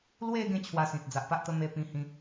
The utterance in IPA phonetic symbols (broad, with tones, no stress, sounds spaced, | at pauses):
l w e˧ ɡ ẽ˦ t͡ɕʰ w a˧ s ĩ˨ t̚ d͡z a˨ ʔ p a˦ ʔ t̪ ə˦ m e˧ p ĩ˧ h ĩ˧